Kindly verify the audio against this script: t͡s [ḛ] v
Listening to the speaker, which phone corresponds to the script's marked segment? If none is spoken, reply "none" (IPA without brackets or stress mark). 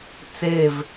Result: e